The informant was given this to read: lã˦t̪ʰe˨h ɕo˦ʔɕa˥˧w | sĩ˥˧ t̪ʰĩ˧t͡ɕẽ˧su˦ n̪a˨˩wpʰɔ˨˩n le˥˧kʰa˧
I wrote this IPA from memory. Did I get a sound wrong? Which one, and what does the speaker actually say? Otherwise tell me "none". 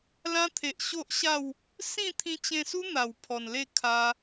h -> ʔ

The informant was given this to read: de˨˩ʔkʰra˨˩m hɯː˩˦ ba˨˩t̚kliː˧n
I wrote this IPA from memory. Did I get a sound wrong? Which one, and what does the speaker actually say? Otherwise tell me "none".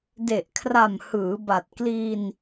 none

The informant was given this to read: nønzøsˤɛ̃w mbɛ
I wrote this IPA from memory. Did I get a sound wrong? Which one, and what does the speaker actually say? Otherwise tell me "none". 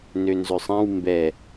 none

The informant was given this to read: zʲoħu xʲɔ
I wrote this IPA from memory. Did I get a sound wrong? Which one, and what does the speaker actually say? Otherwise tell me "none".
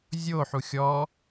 none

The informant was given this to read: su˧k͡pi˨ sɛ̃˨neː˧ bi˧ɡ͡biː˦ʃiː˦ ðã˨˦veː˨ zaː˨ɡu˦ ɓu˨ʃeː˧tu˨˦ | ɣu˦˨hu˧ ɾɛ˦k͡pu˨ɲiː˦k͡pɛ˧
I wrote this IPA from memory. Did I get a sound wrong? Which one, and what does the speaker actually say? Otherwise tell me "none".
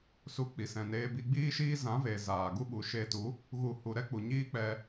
ð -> z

